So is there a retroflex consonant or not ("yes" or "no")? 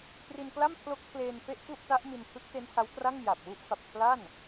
no